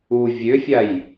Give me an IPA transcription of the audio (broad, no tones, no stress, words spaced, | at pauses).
u vʲøfʲaj